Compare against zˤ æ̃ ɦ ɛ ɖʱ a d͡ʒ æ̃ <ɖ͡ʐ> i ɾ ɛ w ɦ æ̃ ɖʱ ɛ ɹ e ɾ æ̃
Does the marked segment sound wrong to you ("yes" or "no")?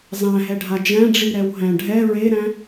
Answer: no